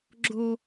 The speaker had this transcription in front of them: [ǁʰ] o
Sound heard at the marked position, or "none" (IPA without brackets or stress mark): ɡ͡ǁ